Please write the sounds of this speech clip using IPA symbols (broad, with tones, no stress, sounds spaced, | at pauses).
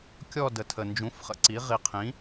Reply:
kʲ ɔ˦˨ d ə˨ tʰ ə˨ n d͡ʒ ũ˨˥ f χ ə̰˨ ǀ i˨˥ ʁ i˨ qʰ ĩ˨˥